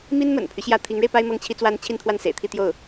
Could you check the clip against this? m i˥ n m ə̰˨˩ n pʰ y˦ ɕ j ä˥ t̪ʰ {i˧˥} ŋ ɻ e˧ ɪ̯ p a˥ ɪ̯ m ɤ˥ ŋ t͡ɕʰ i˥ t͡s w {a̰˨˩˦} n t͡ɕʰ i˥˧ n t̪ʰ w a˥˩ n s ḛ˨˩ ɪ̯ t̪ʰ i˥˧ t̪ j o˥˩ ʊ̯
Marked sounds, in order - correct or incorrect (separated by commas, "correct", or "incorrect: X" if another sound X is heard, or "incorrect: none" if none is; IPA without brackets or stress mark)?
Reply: correct, incorrect: a˥